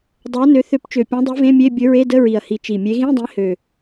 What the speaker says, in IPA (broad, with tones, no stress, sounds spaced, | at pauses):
dˤ ɵ˨˥ ɐ̯ n ø˨˥ θ ø˨˥ p t͡ʃ ø˨˩ pʲ ẽ˨˥ dˤ i˨˥ v ẽ˧˥˧ mʲ e˧˥˧ bʲ ɵ˨˥ ɹ e˧˥˧ d ə˧˥˧ ɹ i˨˩ ɐ̯ h i˨˩ t͡ʃ i˨˩ mʲ e˨˥ ɣ ĩ˧˥˧ dˤ ĩ˨˥ h ø˨˩